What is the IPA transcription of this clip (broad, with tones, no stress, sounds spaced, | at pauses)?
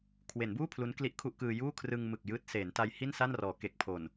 kʰ w e˩˦ n b uː˥˩ pʰ l u˦˥ n k l i˥˩ ʔ kʰ u˥˩ ʔ k ɯː˧ j uː˥˩ kʰ r ɯ˧ ŋ m ɯ˨˩ k̚ j ɯː˦˥ t̚ s eː˩˦ n t a˧ j h i˥˩ n s a˥˩ n r ɔː˩˦ k e˨˩ k̚ pʰ o˨˩ n